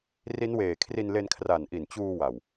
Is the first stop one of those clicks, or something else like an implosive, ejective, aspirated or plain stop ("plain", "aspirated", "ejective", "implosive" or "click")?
aspirated